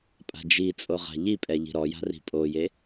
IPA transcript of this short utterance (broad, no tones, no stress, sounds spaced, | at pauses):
pʼ a̤ d͡ʒ i t͡sʼ o ʁ a̤ ʎ i pʼ ɛ ʎ i̤ ɾ ɔ j a̤ r i̤ pʼ o j e